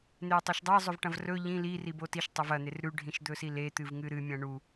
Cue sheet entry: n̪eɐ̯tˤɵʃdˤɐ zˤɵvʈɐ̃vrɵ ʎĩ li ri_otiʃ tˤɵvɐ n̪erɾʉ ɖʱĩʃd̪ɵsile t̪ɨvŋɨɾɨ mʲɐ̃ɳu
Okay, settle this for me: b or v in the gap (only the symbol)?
b